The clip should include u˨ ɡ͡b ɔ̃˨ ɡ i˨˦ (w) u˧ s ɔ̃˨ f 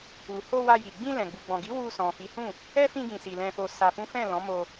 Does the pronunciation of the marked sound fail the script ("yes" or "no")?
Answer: no